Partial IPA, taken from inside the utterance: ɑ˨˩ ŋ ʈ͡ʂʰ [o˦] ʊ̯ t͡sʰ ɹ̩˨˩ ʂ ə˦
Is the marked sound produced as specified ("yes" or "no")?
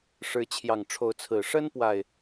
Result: no